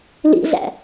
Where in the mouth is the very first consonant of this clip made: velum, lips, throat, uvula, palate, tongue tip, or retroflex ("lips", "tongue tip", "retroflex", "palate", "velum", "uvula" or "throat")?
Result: tongue tip